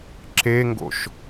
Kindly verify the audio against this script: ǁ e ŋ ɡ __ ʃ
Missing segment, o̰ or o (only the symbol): o̰